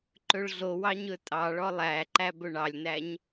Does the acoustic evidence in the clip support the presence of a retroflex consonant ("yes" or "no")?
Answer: yes